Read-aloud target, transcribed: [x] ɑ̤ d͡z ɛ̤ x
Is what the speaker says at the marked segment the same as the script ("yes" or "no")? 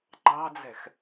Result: no